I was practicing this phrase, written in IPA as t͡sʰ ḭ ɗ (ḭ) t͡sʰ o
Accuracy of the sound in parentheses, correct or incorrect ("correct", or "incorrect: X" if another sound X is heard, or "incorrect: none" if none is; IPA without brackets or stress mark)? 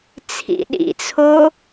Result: correct